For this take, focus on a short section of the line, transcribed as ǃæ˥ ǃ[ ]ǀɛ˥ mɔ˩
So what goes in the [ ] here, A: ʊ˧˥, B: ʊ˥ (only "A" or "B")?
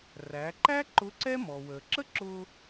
A